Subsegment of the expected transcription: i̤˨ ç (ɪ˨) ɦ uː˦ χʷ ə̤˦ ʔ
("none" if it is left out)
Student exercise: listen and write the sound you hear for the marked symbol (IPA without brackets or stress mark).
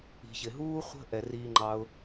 ɪ˨